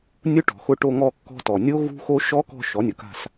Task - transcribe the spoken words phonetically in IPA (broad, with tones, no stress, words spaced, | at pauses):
nʲʊ˦˥ʈɔ̤˩xʊ˦˨ ʈo˦˨ŋɔ˦˨kːɔ̤˦˨ tɔ˩nʲo˦˥ ɣṳ˦˥xo˦˥ ʃɔ˦˥kɔ̤˦˨ ʃɔ˩˥nʲʊ˩ka̤˦˨s